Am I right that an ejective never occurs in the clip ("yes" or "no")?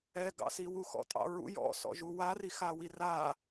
no